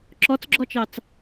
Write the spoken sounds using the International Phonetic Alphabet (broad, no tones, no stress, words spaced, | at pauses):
ǁɔt͡sɡ͡ǁɔt͡ʃɑt͡s